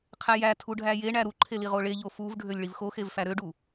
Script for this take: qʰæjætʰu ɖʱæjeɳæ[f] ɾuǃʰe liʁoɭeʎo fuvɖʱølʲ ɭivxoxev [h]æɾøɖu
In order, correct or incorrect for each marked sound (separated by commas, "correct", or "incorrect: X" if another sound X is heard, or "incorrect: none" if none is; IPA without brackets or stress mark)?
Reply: incorrect: none, incorrect: f